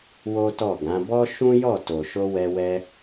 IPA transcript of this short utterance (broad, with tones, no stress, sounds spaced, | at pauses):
w o˦ t ɔ˦˨ ɡ ã˨˦ b ɔ˦ ʃ ũ˦ j ɔ˦˨ t o˨ ʃ o˧ w ɛ˧ w ɛ˧